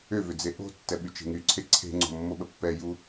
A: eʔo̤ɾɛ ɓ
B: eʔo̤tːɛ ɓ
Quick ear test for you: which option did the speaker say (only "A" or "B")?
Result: B